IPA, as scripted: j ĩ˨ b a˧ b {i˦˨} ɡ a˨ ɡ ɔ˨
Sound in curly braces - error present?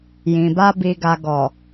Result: yes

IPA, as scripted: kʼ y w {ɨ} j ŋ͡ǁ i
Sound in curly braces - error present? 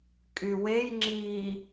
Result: yes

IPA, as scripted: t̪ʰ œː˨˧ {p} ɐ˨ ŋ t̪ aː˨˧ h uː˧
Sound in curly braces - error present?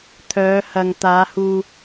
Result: yes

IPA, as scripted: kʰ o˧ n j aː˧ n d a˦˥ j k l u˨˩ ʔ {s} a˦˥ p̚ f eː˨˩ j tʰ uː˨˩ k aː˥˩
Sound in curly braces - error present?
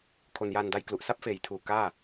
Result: no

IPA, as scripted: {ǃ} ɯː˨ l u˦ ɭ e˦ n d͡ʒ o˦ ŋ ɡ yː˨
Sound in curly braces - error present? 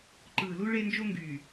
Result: no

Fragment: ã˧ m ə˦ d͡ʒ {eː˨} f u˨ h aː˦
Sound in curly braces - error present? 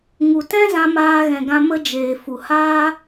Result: no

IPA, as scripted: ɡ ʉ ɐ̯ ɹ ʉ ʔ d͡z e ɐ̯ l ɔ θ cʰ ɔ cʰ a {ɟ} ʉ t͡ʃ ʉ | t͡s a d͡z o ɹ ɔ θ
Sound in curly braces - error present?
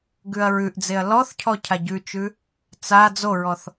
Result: no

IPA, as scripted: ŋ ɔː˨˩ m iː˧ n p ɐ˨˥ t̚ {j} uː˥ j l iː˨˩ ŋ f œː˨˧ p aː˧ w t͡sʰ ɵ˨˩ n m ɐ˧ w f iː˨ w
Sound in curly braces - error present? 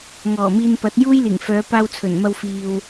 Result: no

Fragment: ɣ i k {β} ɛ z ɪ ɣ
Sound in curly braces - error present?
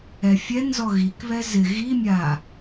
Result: no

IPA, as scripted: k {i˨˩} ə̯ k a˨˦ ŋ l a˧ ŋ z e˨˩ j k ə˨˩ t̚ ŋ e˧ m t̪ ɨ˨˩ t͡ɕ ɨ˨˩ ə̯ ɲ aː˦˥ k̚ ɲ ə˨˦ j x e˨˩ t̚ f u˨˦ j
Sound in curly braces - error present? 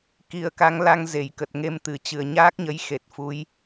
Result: no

